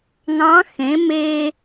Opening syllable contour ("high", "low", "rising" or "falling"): rising